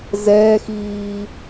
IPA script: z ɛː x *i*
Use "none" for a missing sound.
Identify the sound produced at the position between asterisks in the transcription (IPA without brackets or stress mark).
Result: iː